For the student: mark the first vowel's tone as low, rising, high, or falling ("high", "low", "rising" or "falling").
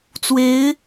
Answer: rising